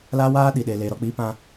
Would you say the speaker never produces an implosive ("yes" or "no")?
no